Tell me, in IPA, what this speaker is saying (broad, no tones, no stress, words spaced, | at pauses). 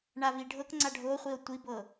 ɳaviɖʱɤkŋ͡ǀa ɖʱoχʷio̯ tʷibɤ